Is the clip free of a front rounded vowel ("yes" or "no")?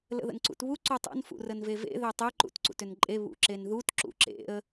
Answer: no